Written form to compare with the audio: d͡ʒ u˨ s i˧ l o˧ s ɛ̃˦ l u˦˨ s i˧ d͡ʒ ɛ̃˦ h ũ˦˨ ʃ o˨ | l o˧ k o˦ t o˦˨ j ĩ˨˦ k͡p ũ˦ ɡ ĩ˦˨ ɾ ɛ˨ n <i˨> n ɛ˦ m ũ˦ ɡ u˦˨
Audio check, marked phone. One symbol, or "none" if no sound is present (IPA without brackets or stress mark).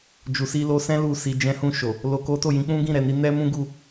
i˧